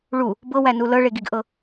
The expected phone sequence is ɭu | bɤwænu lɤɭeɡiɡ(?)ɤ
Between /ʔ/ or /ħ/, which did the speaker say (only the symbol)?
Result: ʔ